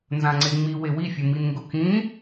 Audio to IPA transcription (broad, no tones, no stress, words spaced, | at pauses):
nzãŋ͡ǀeŋ͡mi wewifʲʊ minŋɡʊkĩ